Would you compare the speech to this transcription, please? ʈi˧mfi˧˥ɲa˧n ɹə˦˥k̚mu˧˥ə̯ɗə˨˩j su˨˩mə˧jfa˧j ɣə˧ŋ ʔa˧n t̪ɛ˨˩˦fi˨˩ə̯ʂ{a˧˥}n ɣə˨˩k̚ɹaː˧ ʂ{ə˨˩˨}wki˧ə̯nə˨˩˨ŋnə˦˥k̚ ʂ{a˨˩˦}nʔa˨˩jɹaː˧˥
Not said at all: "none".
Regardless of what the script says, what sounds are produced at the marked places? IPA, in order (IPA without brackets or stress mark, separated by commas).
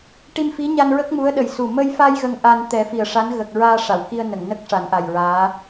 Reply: a˧˥, a˨˩˨, a˨˩˦